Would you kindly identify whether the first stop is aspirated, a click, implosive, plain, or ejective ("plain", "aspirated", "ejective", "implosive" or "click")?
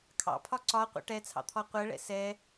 aspirated